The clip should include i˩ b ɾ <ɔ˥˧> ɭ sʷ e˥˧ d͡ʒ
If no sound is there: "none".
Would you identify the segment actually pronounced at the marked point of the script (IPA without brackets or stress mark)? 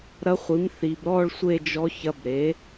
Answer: ɔ˥˧